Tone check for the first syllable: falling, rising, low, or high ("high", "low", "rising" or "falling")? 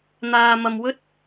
low